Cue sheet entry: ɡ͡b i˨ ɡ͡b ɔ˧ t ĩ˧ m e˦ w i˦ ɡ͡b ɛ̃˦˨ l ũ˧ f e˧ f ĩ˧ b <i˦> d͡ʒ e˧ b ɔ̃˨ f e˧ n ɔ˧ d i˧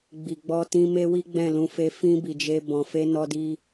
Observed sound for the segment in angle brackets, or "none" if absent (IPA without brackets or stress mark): i˨